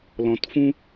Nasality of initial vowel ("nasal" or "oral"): nasal